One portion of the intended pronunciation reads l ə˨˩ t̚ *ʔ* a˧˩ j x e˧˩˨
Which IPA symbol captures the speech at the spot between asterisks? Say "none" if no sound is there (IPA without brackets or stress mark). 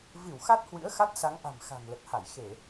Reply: h